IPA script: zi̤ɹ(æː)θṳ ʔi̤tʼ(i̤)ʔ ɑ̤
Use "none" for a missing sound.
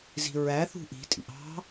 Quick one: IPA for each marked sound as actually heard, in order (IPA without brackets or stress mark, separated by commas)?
æ, ḭ